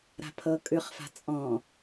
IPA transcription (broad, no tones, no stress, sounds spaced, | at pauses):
ɾ a̤ pʰ ɤ kʼ ʉ χ f a̤ t͡sʼ ɔ̃